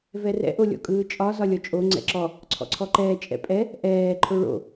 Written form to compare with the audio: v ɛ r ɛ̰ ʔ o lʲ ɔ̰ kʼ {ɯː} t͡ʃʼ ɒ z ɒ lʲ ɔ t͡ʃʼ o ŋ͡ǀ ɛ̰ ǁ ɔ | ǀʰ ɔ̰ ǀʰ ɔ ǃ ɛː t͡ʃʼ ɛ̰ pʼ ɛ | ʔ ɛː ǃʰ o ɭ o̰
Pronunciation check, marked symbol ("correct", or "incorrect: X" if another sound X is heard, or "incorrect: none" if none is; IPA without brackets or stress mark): correct